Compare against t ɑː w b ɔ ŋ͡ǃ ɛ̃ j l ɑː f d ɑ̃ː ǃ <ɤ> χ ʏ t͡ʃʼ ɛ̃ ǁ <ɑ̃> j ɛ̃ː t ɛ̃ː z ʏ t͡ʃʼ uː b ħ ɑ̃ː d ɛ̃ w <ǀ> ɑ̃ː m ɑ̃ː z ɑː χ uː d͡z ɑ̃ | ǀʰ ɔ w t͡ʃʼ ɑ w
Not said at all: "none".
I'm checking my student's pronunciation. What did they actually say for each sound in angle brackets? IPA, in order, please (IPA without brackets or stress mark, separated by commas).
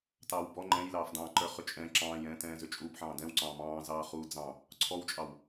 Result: ə˞, ɑ̃ː, ǀ